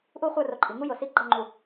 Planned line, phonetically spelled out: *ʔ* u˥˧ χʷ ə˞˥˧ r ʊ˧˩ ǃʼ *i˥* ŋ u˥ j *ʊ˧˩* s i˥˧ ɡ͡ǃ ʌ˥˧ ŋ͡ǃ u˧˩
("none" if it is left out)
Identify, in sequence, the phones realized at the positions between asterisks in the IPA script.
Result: ʔ, i˩˧, ʊ˧˩

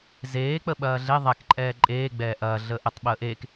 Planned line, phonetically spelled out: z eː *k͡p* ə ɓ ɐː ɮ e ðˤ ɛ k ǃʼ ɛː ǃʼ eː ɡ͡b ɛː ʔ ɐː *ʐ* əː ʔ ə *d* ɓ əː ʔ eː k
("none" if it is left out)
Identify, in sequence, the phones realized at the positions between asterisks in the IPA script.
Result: k͡p, ɮ, tˤ

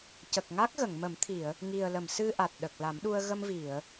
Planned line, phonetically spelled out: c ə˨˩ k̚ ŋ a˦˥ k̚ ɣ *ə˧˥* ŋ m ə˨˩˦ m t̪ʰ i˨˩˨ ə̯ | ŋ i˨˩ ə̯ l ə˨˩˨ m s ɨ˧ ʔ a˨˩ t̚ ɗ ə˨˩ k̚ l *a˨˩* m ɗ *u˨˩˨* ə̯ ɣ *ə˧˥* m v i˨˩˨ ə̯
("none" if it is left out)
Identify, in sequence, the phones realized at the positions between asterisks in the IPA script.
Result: ə˨˩˨, a˨˩˦, u˧, ə˧

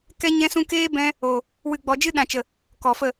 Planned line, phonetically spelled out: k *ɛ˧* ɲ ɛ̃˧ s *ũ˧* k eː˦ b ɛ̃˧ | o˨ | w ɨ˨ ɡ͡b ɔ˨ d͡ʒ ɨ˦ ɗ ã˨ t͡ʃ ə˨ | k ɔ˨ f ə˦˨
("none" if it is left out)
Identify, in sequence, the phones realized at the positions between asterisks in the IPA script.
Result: ɛ˧, ũ˧

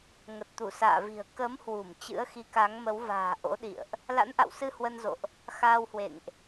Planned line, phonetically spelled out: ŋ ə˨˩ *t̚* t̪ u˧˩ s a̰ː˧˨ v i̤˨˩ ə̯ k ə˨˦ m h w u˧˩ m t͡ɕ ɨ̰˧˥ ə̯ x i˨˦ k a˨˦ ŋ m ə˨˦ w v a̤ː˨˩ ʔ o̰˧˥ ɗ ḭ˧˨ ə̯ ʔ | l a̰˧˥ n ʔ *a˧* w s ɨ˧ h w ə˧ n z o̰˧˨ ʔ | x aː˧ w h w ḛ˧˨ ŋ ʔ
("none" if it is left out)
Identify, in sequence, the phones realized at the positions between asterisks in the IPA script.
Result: t̚, a̰˧˨

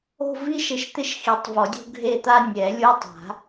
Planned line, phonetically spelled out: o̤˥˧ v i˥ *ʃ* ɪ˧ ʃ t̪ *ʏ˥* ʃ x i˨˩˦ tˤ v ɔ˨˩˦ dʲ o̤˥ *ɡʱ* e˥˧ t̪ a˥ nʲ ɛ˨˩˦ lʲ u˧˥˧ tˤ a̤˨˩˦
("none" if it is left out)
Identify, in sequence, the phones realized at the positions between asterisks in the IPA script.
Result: ʃ, ɪ˥, ɡʱ

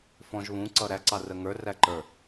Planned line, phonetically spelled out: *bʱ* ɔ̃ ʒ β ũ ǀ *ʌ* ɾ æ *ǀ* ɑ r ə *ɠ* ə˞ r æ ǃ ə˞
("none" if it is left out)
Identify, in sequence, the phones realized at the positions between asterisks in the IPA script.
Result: f, ʌ, ǀ, ŋ

